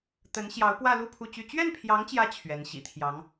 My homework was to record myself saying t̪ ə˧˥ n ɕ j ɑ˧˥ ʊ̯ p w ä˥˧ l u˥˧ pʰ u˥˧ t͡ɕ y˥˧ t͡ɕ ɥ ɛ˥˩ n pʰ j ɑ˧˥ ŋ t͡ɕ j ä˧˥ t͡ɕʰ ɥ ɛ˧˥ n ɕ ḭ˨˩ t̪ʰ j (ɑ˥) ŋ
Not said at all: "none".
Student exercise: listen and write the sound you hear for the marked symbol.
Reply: ɑ˧˥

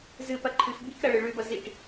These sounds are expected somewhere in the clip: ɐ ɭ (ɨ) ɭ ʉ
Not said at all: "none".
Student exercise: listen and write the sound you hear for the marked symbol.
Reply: ɨ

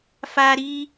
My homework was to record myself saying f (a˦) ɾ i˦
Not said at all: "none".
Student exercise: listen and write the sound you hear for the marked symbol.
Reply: a˦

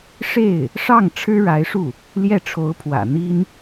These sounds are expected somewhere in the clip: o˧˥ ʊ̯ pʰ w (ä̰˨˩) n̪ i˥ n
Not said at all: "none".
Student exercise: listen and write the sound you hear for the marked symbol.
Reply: ä̰˨˩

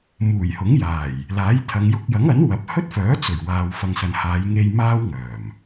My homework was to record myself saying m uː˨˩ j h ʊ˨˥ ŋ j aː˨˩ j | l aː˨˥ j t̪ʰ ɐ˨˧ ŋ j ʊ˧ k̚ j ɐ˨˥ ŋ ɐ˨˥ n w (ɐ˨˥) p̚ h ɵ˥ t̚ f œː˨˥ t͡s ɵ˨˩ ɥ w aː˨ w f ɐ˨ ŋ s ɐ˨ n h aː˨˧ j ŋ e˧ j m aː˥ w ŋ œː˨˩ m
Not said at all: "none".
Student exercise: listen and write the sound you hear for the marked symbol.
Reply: ɐ˨˥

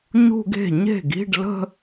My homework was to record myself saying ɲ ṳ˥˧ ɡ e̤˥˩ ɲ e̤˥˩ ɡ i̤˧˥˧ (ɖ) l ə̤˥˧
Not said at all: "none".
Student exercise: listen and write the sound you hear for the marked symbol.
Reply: ɖ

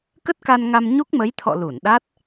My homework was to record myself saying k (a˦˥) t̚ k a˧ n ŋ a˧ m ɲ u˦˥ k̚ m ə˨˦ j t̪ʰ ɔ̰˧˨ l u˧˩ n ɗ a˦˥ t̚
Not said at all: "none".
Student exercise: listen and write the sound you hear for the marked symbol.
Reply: ə˦˥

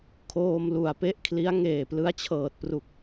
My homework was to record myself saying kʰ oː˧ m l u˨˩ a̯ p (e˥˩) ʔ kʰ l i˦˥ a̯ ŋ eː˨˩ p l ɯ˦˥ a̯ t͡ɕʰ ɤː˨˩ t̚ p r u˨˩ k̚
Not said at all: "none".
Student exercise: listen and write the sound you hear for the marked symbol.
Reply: e˥˩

